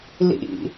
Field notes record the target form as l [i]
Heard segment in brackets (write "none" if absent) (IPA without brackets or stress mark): ḭ